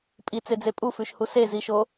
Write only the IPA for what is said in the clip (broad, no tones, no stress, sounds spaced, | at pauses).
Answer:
pʼ i t͡s e d͡z e pʼ u f ʉ ʃ h u s e z i ʃ o